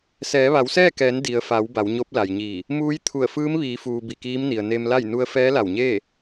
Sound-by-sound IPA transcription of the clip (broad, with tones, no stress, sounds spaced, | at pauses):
s ɛː˩˧ ʋ a˩˧ w s ɛː˥˨ k ɛː˩˧ n d i˩ ə̯ f a˩˧ w b a˩˧ w ɲ o˧˥ p̚ l a˩ j ɲ iː˧˩ | m uː˧˥ j t̪ʰ u˧˩ ə̯ f ɯː˧˥ m ʋ iː˩˧ f uː˩ b i˧˩ k iː˧˥ m n i˩ ə̯ n e˧ m l a˥˨ j n u˧ ə̯ f ɛː˧˥ l a˧˩ w ɲ eː˥˨